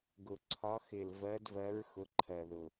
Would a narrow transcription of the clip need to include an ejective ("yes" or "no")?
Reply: no